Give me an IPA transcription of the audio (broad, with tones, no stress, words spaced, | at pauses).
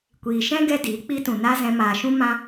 kʷiː˨ʃɛ̃˦ ɡɛ˦diː˨˦ k͡pi˧tũ˨ na˦zɛ̃˧ maː˨ʃũ˦ mã˦